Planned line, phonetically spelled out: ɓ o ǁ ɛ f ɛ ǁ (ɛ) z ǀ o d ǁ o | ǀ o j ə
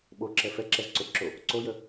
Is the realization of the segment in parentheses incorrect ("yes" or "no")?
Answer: no